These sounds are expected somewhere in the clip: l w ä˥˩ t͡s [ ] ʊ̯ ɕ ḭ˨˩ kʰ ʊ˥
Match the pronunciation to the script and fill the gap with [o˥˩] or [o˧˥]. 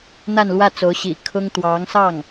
o˧˥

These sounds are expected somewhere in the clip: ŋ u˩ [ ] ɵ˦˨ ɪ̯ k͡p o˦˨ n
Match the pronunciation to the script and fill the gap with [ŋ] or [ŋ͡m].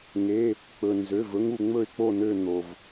ŋ͡m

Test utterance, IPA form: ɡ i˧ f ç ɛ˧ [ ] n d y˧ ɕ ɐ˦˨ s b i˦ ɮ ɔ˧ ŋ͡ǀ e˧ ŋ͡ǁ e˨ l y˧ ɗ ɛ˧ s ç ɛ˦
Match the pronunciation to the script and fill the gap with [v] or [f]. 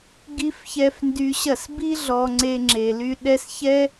f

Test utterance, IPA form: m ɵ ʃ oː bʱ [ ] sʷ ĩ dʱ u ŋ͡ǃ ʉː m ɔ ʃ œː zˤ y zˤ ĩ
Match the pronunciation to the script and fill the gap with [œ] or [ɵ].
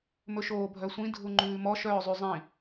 œ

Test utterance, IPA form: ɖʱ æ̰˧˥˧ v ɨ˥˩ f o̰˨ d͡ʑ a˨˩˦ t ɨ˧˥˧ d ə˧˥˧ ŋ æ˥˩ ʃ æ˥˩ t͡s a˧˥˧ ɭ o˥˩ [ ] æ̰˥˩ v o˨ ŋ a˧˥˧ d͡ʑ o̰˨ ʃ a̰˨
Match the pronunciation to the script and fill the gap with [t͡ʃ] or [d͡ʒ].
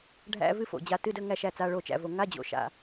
t͡ʃ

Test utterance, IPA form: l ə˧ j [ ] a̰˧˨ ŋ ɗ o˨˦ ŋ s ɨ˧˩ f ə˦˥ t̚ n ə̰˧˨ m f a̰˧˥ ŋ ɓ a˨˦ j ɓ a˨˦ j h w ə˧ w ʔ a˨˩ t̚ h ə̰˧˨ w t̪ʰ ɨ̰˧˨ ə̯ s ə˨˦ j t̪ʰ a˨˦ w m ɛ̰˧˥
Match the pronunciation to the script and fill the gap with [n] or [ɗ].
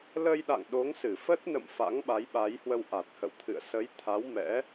ɗ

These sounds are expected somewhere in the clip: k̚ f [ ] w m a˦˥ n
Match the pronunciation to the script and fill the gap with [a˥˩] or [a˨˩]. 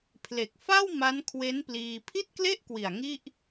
a˥˩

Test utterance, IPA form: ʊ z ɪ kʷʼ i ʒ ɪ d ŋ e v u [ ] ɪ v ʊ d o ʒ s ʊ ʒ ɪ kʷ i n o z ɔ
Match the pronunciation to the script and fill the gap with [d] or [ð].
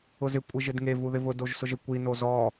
ð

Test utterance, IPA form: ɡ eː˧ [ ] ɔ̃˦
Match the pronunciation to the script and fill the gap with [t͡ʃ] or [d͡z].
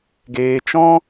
t͡ʃ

